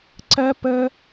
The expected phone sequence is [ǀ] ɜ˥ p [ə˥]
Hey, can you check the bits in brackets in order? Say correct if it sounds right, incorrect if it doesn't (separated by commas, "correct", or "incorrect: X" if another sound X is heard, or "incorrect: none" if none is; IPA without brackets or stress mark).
correct, correct